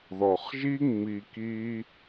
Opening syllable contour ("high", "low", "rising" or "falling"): low